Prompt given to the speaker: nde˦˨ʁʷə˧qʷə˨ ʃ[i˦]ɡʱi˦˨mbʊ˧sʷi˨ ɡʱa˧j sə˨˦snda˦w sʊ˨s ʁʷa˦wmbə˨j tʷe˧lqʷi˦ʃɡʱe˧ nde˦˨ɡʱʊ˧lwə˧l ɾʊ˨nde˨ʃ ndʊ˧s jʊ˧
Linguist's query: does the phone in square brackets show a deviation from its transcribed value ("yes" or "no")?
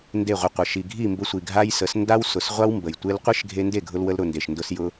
yes